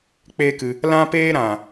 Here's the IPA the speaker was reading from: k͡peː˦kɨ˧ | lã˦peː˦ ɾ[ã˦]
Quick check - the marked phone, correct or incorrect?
incorrect